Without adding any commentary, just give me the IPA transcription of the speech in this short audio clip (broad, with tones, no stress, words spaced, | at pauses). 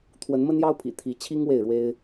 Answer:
t̪ʰwə˨˦nmə˦njɑ˦ʊ̯pʰḭ˨˩ t̪ʰi˨˦t͡ɕʰi˦ŋ we˥˨ɪ̯ɻwe˦ɪ̯